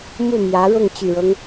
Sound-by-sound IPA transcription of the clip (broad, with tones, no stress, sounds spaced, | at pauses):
m u˥˩ m j ä˧˥ ɻ ʊ˥˩ ŋ t͡ɕ y˨˩ ɻ ɤ˦ ŋ